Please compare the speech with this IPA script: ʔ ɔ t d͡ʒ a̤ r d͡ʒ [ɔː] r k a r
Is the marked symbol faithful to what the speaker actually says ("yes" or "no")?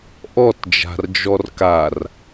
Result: no